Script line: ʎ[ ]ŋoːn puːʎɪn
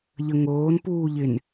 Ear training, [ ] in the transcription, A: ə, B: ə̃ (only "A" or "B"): A